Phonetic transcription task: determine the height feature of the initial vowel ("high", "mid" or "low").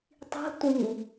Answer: high